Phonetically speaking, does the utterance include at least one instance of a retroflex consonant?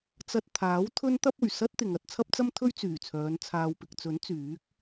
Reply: no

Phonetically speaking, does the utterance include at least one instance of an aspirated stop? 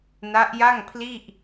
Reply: yes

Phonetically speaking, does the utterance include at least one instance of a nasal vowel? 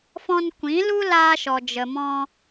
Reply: yes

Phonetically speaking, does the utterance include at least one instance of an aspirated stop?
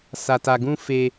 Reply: no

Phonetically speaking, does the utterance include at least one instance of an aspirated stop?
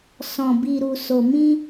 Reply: no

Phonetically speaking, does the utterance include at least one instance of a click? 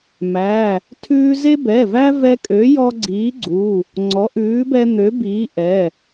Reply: yes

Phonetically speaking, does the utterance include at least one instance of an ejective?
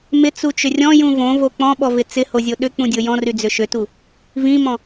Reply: no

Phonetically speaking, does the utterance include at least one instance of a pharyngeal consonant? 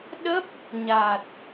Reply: no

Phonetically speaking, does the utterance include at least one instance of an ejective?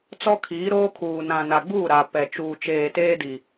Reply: no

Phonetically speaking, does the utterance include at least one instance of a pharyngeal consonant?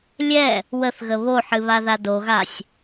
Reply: yes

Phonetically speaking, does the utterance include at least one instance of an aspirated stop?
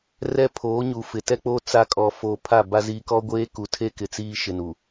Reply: yes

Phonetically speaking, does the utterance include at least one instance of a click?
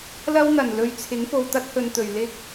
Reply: no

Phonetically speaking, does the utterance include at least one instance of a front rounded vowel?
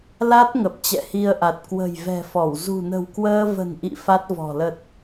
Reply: no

